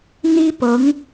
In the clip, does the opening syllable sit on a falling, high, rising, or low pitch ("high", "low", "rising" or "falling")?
high